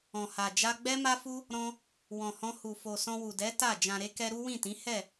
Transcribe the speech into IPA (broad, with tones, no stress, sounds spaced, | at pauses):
ɔ̃˨ h a˨ d͡ʒ a˧ ɡ͡b ɛ˦ m a˦ f u˦ | ɾ ɔ̃˦ | w ɔ̃˨ h ɔ̃˧ h u˨ f o˨ s ɔ̃˧ w u˨ d ɛ˨˦ t a˦˨ d͡ʒ ã˨ ɾ e˧ k ɛ˧ ɾ u˦ w ĩ˦˨ t ĩ˨˦ h ɛ˦˨